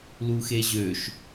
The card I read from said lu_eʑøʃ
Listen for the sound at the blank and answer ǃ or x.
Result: x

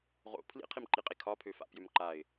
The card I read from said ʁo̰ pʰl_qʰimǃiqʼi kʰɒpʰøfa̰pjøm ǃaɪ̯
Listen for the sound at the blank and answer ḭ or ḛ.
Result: ḭ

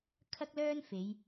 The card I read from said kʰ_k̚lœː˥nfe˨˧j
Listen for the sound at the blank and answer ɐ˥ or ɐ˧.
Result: ɐ˥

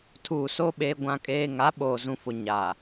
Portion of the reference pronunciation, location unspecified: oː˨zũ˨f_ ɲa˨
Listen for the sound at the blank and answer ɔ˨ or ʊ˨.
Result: ʊ˨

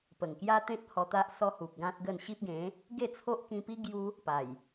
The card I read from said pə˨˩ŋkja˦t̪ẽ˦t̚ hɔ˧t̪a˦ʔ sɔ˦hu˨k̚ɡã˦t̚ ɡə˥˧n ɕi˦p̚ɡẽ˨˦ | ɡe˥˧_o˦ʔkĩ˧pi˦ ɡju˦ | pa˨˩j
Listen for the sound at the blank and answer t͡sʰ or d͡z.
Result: t͡sʰ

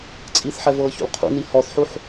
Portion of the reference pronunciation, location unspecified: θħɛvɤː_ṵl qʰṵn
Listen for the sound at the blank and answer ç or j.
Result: ç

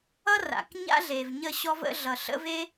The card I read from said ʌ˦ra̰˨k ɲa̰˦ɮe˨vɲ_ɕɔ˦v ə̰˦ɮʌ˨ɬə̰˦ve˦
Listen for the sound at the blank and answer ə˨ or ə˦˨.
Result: ə˦˨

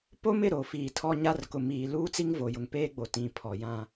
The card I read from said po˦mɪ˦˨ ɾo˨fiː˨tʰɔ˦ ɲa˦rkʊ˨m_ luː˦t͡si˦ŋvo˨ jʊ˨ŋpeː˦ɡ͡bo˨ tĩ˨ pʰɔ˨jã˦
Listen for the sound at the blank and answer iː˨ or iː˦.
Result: iː˨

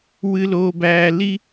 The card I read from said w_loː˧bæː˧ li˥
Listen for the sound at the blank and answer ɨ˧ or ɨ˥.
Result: ɨ˧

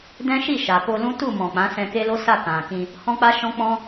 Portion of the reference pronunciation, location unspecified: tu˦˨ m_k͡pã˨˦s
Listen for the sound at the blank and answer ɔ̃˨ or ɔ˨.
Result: ɔ̃˨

